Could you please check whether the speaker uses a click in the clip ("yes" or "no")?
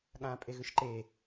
yes